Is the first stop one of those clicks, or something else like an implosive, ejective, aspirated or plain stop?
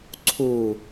click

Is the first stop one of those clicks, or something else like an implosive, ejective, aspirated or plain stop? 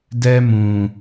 plain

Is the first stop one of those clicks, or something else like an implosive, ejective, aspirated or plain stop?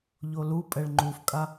ejective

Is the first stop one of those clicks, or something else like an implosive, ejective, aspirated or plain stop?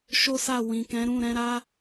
plain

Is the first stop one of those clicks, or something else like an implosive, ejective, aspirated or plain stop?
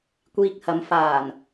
plain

